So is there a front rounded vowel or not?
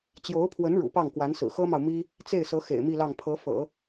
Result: no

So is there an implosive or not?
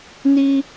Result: no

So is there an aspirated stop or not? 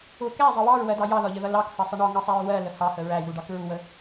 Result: no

